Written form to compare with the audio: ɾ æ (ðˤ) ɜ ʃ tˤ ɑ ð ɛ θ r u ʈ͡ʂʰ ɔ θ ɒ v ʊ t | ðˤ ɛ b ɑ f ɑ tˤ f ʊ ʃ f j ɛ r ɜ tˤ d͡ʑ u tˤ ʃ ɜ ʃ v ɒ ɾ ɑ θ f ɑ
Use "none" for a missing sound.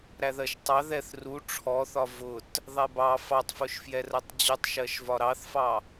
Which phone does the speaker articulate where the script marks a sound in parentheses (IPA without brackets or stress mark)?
ð